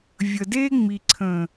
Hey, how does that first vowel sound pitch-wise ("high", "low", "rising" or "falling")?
low